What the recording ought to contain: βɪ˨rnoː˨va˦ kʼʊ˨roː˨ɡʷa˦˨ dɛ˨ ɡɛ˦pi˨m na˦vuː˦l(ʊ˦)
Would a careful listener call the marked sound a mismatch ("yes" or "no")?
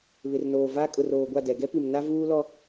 yes